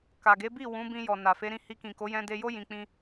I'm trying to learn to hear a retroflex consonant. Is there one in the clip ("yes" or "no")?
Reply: no